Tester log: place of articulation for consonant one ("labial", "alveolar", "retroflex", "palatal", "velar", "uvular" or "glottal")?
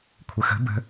velar